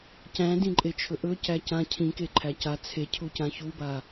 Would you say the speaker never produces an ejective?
no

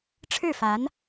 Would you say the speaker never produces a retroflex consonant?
no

